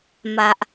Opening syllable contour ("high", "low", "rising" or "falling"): low